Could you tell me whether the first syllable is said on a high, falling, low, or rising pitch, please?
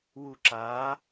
low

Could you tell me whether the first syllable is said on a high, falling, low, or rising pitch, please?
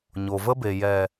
low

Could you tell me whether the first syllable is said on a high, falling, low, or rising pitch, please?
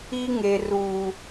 high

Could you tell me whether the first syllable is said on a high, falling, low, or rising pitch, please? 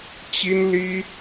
high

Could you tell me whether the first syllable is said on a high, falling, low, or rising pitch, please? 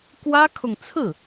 high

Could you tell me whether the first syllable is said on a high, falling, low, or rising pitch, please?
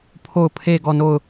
falling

